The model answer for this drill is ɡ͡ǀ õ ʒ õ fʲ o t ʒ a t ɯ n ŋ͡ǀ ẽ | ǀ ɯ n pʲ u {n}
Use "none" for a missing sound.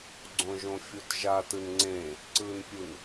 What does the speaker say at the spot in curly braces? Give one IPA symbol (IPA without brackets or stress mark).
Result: n